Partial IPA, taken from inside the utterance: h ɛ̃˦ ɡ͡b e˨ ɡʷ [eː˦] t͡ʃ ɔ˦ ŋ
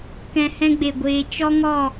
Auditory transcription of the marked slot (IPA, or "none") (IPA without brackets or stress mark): eː˧